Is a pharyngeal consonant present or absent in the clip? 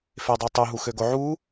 present